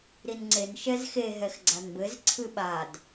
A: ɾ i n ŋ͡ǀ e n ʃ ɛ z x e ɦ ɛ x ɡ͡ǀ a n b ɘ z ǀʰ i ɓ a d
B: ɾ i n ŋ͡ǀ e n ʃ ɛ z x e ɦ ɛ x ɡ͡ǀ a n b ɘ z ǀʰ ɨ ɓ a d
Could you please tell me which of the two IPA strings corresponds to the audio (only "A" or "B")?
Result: B